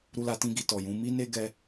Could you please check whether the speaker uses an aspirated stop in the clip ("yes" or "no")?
no